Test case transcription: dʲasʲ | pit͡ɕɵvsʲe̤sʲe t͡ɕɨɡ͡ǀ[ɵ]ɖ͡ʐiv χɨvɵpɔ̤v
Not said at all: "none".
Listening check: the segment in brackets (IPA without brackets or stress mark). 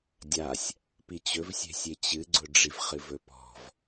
ʊ